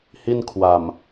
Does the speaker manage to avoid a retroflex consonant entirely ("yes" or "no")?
yes